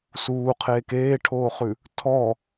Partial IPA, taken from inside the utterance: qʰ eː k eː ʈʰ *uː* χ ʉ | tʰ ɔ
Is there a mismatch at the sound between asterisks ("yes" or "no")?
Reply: yes